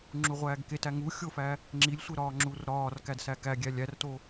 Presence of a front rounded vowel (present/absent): absent